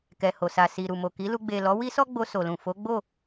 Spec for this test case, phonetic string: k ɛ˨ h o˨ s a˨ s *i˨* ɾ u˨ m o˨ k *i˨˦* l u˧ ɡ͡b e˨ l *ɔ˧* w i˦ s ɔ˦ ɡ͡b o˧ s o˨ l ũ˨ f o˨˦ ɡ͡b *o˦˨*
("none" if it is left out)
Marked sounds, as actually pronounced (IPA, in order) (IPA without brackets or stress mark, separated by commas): i˨, i˨˦, ɔ˨˦, o˦˨